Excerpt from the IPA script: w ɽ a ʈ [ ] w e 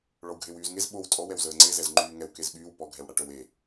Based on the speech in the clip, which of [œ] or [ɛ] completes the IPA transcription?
œ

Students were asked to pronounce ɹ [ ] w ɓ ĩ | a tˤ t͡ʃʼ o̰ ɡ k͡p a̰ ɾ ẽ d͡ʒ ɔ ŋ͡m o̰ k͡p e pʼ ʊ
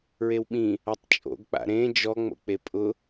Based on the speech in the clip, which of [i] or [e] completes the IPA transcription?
e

